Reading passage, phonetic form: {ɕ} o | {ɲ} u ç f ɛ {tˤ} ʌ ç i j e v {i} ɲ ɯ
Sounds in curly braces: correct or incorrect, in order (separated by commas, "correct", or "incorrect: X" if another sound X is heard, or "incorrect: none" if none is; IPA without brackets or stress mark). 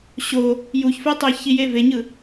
correct, incorrect: j, correct, incorrect: e